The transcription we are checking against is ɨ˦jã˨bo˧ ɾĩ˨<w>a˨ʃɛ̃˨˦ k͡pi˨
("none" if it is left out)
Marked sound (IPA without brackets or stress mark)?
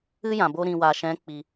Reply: w